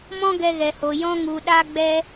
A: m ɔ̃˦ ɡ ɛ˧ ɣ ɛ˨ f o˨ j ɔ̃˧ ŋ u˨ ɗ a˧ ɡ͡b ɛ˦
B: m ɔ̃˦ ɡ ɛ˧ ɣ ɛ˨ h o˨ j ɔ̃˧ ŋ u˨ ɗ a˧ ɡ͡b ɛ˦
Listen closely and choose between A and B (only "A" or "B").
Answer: B